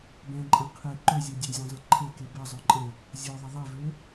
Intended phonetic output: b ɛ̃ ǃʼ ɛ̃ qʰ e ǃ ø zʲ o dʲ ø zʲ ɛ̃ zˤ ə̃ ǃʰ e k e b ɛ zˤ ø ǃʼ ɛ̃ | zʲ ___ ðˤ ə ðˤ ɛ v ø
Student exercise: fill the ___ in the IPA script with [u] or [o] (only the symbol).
o